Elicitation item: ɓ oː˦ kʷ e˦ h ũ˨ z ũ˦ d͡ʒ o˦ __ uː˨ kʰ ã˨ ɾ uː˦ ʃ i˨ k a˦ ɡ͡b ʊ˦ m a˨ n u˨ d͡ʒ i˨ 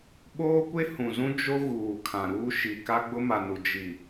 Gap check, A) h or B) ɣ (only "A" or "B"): B